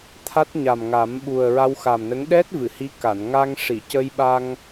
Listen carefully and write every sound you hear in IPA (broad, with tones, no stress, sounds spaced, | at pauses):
t̪ʰ a˦˥ t̚ ɲ a˨˩ m ŋ a˨˩˦ m ɓ u˨˩ ə̯ ɹ a˧ w x a˨˩ m n ə˧˥ ŋ ɗ ɛ˦˥ t̚ v ɨ˨˩˨ h i˧˥ k a˨˩˨ n ŋ a˧ ŋ ʂ i˨˩˨ c ə˧ j ɓ a˧ ŋ